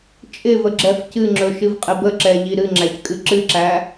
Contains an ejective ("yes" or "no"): yes